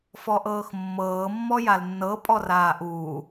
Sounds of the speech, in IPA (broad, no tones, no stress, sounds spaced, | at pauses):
f ɔ ʔ ɤː x mː ɤː mː ɔ j a l nː ɤ pʼ ɔ r aː ʔ uː